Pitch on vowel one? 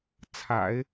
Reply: low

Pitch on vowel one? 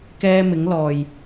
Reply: high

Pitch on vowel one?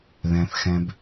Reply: low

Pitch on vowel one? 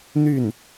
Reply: falling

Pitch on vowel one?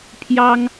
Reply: high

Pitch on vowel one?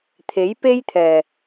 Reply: rising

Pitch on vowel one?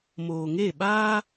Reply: low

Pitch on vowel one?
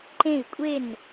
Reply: falling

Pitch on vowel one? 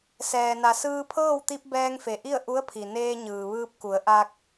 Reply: low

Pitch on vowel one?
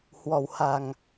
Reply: low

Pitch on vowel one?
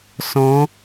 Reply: rising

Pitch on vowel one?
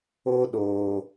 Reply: high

